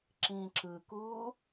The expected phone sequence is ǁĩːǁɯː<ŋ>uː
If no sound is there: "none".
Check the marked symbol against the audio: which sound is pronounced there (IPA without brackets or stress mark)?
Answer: k